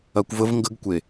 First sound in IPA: ɐ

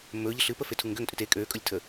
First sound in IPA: mː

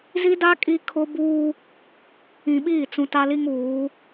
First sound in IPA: z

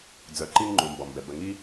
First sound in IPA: d͡z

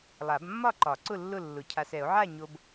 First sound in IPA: lˠ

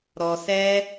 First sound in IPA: ɾ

